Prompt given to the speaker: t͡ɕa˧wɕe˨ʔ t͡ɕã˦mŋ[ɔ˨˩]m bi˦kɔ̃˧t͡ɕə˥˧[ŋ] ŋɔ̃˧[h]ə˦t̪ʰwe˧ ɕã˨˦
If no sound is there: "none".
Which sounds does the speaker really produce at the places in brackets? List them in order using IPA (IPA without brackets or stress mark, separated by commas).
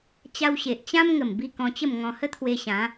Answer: ə˨˩, m, h